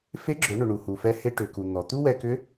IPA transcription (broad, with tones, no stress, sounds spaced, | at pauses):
f e˧˥ ɡ͡ǁ ʏ˩˧ ɳ ʏ˩ ɳ u˩ h u˩ f ɛ˧ h e˧ ʈ ʏ˩ k u˩ n̪ ɔ˩ t̪ u˥ w ɛ˧ k ʏ˧˥